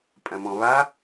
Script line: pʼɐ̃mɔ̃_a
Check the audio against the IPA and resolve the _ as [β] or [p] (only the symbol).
β